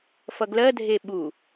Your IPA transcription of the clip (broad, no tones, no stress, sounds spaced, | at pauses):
f ʌ ɡ l ɜ dʱ e ɓ u